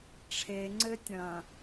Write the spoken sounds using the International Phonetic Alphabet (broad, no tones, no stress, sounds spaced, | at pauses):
ʈ͡ʂʰ e ŋ͡ǀ ɘ tʲ ɐ̃